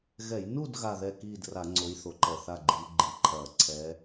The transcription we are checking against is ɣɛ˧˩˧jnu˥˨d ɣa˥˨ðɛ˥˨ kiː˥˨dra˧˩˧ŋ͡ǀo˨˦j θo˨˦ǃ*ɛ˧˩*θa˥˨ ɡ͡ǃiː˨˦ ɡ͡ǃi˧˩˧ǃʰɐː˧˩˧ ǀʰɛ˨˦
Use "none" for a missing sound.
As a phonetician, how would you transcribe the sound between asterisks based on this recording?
ɛ˧˩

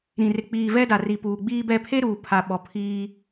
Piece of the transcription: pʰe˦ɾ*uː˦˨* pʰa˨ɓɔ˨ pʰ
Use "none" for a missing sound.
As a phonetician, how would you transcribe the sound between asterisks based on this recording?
uː˨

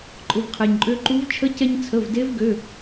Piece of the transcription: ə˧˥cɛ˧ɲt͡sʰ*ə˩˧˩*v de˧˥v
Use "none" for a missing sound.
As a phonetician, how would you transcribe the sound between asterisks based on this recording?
ə˩˧˩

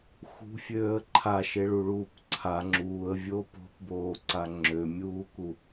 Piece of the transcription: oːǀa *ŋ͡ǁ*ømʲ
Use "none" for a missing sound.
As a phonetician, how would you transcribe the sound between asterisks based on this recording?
ŋ͡ǁ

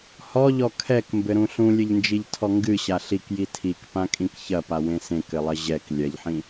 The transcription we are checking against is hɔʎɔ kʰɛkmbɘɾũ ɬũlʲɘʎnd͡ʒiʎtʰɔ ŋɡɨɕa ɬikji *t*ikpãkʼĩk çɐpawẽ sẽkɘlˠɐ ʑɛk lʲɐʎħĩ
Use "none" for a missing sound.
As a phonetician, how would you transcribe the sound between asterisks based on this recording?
tʰ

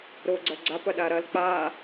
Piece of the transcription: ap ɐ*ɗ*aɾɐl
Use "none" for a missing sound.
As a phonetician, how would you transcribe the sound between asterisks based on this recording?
ɗ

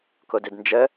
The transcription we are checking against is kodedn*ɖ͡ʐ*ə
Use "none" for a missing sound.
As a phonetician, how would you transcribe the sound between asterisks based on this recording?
d͡ʒ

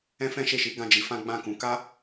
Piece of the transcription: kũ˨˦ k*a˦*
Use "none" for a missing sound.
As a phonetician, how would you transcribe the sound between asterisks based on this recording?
a˦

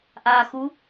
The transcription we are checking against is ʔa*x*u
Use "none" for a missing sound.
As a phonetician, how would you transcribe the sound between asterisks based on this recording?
x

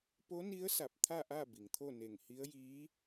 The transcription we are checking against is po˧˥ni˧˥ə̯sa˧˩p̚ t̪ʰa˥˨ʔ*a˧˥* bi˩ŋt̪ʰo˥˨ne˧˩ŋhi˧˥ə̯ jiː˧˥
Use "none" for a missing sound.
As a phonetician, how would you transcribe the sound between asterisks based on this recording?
a˥˨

